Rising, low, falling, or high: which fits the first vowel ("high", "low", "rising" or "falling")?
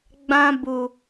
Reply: high